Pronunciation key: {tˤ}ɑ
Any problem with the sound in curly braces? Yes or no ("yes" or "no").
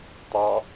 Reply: no